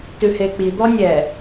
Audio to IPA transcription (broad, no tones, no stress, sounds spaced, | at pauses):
t ʉ h e k͡p i d̪ ɔ nʲ ɛ